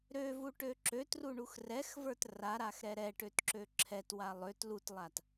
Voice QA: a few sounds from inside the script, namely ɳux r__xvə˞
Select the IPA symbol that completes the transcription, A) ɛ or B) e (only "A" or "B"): A